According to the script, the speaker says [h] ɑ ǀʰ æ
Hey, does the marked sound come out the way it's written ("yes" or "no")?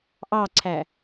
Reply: no